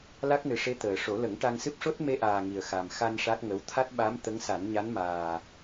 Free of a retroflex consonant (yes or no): no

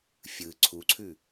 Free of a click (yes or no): no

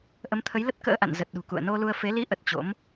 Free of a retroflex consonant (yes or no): yes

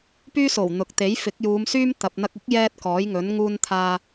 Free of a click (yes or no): yes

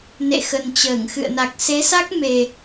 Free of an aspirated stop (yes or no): yes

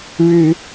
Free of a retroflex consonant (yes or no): no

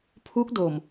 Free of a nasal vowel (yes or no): yes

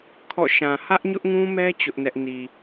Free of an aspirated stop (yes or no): no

